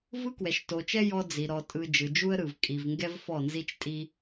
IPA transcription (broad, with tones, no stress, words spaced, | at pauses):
vɯ˦kwɛ˨ʃto˨t͡ʃɛ˦ jɔ˦d͡zi˨ ɾɔ˨tʼɯ˨ d͡ʒɯ˨d͡ʒu˦ə̯ɾɯ˨v kʼi˨vŋɡɛ˦v fɔ˦˨nzi˦t͡ʃtʼi˦